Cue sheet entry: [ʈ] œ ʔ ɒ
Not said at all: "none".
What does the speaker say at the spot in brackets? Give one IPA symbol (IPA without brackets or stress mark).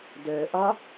d